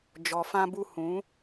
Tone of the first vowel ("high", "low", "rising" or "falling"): low